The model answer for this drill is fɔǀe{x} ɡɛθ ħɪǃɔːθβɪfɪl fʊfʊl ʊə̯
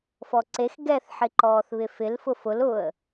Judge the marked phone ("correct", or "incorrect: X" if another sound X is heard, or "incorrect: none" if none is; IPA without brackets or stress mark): correct